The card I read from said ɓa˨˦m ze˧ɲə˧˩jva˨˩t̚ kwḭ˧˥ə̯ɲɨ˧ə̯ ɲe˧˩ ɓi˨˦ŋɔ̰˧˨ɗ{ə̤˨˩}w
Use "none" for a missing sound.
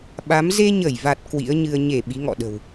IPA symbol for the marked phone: ə̤˨˩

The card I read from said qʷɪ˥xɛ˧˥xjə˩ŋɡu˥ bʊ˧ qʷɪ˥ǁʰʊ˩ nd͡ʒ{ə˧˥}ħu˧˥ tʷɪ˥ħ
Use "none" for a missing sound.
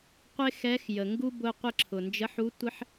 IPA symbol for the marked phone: ə˧˥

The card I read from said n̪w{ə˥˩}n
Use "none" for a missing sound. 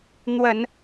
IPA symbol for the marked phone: ə˨˩˦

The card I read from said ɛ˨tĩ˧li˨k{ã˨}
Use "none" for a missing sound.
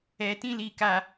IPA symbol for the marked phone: a˨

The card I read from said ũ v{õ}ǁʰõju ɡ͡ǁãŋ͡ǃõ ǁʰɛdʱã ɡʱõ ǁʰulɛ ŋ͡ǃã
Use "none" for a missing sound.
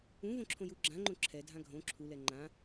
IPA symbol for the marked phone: õ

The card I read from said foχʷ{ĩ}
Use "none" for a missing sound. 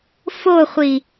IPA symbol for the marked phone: i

